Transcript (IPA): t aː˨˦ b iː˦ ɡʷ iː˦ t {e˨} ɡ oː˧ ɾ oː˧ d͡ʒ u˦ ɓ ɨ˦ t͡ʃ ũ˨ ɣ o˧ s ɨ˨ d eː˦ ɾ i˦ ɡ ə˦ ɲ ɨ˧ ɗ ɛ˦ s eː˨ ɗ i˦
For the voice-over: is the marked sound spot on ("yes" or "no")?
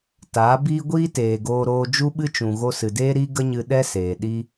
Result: no